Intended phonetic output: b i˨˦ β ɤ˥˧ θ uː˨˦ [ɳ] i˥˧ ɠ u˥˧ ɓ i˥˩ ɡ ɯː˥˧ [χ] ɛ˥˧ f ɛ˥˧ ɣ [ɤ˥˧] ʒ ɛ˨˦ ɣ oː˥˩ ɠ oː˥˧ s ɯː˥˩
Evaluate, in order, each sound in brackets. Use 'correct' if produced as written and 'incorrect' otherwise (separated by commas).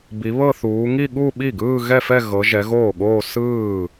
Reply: incorrect, incorrect, incorrect